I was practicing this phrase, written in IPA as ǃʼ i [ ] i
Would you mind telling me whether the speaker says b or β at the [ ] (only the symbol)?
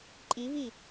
β